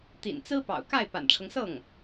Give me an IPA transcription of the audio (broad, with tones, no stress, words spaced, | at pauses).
t̪ḭ˨˩nt͡sɹ̩˥pɑ̰˨˩ʊ̯ka˥˩ɪ̯ pa̰˨˩nʈ͡ʂʰɤ˦ŋsɤ˥˩ŋ